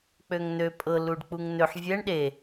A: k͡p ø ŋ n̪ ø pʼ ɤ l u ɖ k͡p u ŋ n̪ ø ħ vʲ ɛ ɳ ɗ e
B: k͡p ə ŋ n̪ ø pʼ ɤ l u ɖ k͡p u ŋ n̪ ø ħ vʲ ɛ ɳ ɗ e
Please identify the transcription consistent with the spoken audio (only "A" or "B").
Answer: A